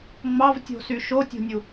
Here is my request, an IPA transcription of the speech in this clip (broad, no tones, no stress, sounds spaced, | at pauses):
ŋ͡m ɑ v tʲ o̤ s y ʃ o tʲ o̤ nʲ u